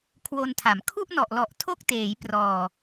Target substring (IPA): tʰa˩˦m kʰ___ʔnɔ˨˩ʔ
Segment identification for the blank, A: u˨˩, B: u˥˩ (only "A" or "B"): B